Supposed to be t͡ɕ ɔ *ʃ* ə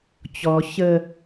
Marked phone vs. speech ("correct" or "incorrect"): incorrect